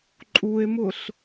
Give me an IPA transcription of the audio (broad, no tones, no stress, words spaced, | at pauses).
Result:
ǃʼue̯mʊɬ